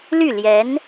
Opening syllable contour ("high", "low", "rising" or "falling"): falling